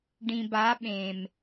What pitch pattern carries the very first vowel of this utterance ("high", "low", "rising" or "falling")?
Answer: low